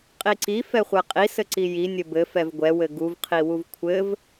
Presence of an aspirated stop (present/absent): present